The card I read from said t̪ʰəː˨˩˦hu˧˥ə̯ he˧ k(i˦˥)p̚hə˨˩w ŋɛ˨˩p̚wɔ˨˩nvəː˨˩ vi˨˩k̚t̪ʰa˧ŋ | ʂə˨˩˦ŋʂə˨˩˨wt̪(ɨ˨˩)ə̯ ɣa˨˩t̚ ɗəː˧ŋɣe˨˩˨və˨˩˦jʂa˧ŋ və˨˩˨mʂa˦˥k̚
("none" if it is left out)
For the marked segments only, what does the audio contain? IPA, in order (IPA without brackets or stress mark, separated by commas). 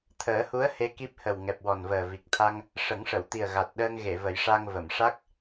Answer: i˦˥, i˨˩